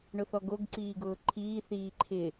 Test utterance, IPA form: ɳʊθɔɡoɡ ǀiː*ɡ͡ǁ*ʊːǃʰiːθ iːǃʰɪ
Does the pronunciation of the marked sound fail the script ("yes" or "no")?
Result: yes